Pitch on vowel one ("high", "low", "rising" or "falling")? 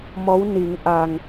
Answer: rising